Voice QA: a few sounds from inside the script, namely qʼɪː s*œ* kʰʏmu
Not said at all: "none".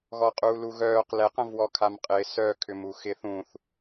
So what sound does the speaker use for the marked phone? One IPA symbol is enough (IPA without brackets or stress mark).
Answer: œ